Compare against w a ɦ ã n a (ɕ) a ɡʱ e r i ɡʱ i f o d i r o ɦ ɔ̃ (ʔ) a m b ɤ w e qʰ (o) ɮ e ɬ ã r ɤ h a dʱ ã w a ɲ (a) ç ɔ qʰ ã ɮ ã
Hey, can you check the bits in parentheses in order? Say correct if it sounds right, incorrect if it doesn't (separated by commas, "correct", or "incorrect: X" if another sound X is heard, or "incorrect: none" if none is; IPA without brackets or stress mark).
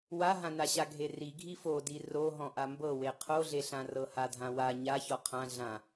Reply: correct, correct, correct, correct